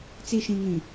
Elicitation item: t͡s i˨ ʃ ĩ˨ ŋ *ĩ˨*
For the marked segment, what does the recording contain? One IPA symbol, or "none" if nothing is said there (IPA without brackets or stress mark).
ĩ˨